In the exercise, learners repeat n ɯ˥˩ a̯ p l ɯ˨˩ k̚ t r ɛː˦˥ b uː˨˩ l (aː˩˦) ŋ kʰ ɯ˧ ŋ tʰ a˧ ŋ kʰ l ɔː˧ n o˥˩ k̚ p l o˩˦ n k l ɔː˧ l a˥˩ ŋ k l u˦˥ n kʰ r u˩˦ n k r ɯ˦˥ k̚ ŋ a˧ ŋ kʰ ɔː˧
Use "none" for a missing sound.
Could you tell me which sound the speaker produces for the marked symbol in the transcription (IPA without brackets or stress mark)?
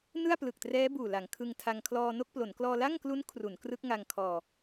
a˩˦